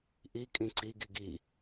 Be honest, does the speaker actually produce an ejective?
yes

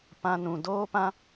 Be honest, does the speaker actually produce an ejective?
no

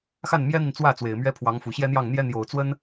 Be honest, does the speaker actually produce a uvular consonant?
no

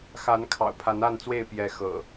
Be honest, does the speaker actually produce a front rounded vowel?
no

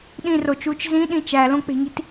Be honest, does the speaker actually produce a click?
no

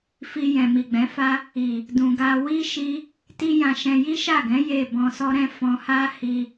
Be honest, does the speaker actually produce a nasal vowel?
yes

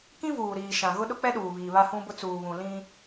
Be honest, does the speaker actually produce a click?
no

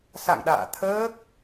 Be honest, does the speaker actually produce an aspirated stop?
yes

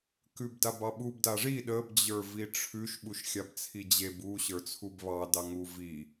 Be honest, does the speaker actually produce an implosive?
yes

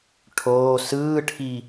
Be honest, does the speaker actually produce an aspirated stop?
yes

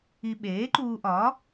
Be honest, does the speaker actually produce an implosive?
yes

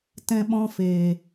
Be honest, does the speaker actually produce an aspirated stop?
no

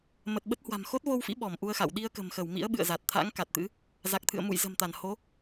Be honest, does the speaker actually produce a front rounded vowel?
no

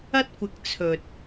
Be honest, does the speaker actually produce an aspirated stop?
yes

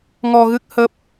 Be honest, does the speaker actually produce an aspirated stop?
no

